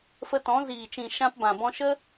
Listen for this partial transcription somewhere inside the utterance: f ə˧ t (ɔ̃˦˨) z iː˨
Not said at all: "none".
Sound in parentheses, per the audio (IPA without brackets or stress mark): ɔ̃˨˦